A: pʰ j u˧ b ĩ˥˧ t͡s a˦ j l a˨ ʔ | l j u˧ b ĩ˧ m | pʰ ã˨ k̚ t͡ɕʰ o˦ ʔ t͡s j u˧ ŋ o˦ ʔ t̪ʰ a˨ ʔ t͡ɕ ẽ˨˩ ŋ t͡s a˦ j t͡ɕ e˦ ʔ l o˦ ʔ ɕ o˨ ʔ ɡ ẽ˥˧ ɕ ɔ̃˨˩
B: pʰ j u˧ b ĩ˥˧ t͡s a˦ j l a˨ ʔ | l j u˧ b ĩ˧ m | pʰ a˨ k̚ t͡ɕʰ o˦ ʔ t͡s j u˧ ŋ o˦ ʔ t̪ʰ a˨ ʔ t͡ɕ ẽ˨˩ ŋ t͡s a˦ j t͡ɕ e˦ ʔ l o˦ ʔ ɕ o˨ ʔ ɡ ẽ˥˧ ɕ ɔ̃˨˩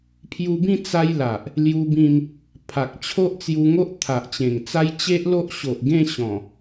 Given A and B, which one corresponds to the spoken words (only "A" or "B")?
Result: B